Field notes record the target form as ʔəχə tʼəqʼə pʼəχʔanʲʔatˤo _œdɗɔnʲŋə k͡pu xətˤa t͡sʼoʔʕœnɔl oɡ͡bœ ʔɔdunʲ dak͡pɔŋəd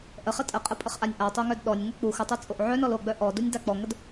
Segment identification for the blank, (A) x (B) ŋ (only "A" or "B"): B